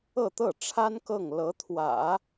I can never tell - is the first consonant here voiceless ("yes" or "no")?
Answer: yes